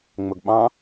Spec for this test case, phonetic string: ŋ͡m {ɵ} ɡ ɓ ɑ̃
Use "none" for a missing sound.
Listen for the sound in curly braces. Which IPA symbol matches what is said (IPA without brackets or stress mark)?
ɵ